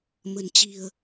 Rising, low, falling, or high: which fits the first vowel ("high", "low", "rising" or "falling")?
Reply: low